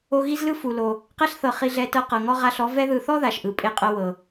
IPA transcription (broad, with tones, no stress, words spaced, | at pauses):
o˧ ɣi˦zlɯ˦fu˨ lo˨ | qɛ˦ɬ θɤ˨ χi˧ɮɛ˧tɤ˧ qɤ˨ŋɔ˦ ʁa˧ɬɔ˨˦ vɛ˧ðɯ˨θɔ˦ ða˨ʃʔɯ˨ pʼe˧qʼɤ˧wɤ˨